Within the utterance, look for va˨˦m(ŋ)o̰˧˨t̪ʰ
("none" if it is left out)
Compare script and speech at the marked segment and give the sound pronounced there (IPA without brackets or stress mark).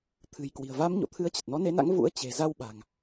ɲ